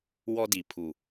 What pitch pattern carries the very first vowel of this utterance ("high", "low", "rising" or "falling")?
high